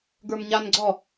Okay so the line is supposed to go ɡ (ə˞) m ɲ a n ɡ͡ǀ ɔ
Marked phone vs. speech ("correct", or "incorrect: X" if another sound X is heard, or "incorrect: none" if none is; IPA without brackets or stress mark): correct